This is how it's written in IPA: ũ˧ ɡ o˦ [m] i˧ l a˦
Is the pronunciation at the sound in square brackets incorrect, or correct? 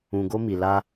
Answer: correct